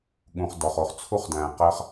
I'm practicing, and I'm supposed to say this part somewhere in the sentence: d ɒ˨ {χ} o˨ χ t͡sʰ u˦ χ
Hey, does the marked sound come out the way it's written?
yes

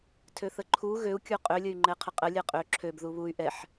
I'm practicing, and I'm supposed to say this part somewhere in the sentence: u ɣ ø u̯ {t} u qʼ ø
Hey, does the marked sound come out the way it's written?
no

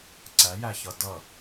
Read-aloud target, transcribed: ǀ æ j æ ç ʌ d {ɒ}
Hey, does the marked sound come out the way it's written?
no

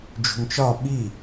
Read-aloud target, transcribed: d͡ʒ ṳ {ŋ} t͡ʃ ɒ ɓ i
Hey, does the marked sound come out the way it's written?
yes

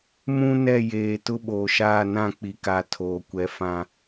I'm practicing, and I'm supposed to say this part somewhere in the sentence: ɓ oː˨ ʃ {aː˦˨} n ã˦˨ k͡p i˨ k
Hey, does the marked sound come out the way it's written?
yes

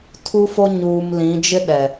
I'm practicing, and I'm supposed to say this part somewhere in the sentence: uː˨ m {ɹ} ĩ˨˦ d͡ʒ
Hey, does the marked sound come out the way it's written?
no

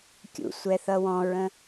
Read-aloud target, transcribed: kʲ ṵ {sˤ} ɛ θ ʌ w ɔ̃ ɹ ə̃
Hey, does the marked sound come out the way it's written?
no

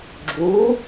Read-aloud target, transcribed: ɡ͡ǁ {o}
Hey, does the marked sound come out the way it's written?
no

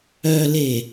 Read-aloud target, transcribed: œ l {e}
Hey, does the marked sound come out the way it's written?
yes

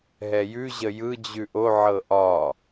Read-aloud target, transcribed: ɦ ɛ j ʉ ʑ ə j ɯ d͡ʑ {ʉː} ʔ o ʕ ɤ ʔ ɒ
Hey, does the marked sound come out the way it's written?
no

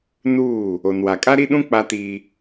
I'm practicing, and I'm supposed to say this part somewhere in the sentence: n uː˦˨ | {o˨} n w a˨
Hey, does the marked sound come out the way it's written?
yes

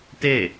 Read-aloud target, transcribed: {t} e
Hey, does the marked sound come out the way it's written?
yes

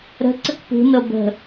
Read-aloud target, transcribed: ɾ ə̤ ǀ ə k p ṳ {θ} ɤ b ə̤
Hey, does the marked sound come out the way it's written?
no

